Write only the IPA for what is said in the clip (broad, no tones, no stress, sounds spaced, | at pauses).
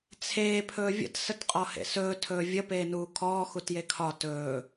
t͡sʰ eː pʰ ɵː vʲ ə̰ t s ə t qʼ ɔ h ḛ s ɵː tʰ ɵː vʲ ə p eː n uː kʰ ɔː x u t j e kʰ ɒ t ɵː